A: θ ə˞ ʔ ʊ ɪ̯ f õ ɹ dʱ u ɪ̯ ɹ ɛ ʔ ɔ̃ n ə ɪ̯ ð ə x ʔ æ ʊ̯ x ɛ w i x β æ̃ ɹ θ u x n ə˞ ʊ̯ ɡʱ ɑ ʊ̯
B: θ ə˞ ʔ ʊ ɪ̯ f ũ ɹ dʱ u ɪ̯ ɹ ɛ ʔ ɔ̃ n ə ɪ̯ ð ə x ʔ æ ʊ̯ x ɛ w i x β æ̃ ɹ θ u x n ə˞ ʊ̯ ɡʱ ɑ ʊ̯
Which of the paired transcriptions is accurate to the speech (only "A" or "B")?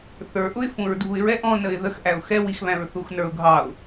B